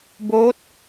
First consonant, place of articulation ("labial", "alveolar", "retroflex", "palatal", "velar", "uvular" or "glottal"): labial